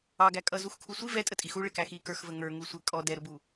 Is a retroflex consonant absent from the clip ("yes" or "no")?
no